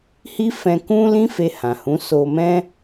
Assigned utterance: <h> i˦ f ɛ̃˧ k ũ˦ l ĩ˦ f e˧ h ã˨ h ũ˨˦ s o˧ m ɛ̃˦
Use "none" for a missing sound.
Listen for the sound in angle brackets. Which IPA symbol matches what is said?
h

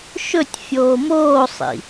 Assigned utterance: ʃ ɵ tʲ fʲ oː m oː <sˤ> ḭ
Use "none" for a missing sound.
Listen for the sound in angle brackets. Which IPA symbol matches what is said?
sˤ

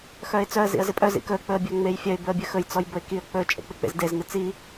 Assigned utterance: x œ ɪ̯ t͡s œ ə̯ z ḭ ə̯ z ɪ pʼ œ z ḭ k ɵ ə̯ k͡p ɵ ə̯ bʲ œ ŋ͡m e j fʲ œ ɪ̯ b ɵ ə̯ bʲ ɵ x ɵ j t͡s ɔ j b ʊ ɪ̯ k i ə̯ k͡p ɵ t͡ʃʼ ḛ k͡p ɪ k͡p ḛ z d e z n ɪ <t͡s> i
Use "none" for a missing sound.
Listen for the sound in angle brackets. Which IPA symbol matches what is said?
t͡s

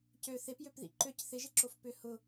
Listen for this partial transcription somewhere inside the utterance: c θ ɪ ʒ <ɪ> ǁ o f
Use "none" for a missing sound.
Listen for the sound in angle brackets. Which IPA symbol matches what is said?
ɪ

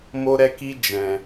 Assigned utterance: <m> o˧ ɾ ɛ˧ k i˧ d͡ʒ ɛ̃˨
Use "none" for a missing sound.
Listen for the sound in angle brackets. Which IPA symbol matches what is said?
m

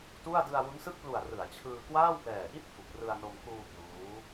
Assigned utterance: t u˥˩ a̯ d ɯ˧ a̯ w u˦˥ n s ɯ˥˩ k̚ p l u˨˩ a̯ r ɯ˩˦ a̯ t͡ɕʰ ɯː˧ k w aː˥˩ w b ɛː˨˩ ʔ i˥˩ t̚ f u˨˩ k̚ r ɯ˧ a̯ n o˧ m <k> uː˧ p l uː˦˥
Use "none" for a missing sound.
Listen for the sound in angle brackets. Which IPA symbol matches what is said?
k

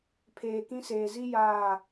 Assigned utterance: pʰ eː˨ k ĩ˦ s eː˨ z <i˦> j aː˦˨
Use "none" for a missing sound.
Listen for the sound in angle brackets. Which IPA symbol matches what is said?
i˦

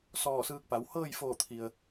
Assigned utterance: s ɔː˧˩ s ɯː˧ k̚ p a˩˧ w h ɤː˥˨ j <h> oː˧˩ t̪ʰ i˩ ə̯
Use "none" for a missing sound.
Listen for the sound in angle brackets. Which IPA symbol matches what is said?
f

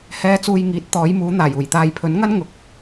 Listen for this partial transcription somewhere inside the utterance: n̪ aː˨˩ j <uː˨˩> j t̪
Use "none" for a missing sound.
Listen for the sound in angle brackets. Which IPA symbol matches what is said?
uː˨˩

